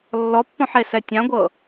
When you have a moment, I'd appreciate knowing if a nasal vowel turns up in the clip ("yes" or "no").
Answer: yes